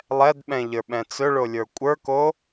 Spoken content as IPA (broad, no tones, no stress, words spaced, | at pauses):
lˠɛdɓɛ̃ʎə˞ɓɛ̃ t͡sɵɭolʲə˞ kʷʼə˞ko